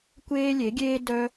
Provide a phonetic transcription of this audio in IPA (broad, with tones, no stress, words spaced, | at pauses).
kʷeː˦lʲe˨˦ɡʲeː˦ dœ˧